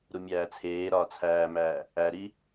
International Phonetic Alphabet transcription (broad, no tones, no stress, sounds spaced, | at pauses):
ɾ u mʲ æː t͡sʰ eː ɾ ɒː t͡sʰ æː m æː | æ ɾ i